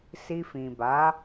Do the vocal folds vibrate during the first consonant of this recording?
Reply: no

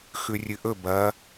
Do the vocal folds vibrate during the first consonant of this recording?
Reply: no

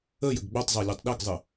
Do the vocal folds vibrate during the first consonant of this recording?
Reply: yes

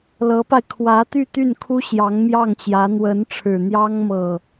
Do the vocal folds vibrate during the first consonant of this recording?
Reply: yes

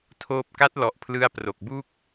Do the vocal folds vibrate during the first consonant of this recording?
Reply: no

